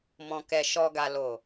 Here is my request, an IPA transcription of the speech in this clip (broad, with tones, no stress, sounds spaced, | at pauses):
m ɔ̃˨ k ɛ˨ ʃ ɔ˨ ɡ a˨ l o˨